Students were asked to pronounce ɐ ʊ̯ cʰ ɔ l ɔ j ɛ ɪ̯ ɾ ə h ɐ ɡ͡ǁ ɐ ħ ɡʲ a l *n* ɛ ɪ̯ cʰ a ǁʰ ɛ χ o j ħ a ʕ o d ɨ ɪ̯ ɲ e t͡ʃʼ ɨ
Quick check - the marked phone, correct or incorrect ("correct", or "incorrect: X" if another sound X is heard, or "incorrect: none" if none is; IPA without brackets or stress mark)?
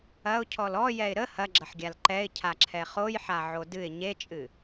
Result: incorrect: ǃ